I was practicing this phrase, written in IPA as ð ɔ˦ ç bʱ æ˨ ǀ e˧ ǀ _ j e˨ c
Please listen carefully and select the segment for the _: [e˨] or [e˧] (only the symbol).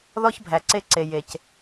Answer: e˨